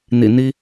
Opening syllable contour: low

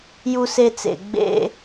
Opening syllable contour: high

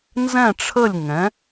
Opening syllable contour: falling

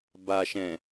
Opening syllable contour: low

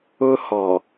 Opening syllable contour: high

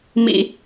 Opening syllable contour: high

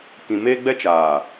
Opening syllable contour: low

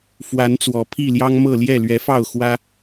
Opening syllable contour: rising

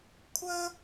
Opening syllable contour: high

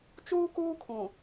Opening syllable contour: high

